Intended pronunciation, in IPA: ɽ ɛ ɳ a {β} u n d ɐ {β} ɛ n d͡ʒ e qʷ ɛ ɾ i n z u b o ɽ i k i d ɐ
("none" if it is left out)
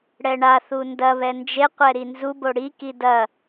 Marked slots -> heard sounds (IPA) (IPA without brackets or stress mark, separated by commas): θ, β